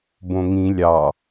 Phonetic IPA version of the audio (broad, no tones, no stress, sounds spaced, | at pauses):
b õ ŋ ĩ lʲ ɑ